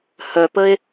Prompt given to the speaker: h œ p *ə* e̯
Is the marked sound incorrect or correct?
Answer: correct